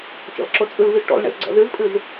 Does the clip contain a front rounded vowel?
no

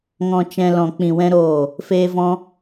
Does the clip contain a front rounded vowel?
no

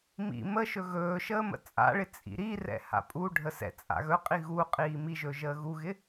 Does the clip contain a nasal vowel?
no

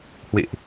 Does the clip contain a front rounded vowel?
no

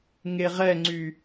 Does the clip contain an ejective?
no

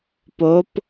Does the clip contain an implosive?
no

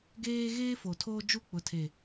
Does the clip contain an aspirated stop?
yes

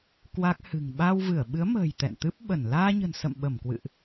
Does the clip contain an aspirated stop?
no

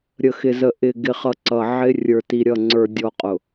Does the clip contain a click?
yes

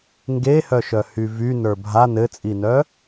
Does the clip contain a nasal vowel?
no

